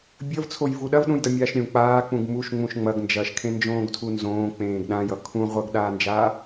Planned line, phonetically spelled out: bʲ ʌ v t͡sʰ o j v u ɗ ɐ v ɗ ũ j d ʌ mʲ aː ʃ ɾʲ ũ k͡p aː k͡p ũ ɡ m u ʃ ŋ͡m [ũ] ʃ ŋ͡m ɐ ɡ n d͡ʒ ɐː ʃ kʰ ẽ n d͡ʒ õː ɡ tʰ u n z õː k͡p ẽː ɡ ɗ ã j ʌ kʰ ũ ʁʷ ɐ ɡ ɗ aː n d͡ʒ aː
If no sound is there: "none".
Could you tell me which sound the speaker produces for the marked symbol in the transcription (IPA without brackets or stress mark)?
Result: ũ